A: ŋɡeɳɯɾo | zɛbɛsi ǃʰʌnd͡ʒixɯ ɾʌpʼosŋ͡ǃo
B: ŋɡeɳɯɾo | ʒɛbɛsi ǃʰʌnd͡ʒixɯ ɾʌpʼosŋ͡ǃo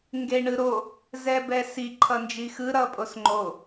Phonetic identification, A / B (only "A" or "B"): A